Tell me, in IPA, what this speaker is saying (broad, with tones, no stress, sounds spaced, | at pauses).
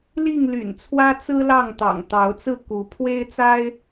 l i˥˨ ŋ l y̰˨˩ n t͡sʰ w ä˦ t͡s ɹ̩˦ l ɑ˥˨ ŋ t̪ ɑ̰˨˩ ŋ t̪ ɑ˨˦ ʊ̯ t͡s ɹ̩˥˨ k u˨˦ pʰ w e˦ ɪ̯ t͡s a˦ ɪ̯